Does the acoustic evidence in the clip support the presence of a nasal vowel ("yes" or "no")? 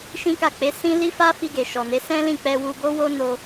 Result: yes